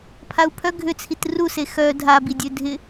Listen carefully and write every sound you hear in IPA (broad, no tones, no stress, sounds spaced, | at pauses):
pʰ a u̯ pʰ œ ɡʱ ʏ t͡sʰ i t r u s e x œ dʱ a b i dʲ ø dʱ ɪ